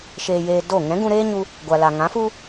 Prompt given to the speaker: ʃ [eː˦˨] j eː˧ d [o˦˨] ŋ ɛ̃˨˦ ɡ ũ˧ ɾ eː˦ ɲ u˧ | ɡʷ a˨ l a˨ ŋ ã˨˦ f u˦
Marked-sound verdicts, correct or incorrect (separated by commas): incorrect, correct